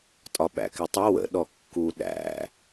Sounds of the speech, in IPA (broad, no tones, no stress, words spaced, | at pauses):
tʼɒɓæ̰kɪtˤə wə̰ ɗɔkːu ɗæ̰